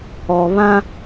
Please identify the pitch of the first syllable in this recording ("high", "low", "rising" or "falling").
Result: low